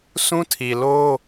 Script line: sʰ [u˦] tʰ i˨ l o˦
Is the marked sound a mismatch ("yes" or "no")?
yes